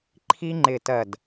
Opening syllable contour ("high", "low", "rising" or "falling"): high